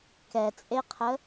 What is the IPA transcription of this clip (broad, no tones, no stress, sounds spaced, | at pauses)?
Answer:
k ɛ t͡sʼ e qʰ ə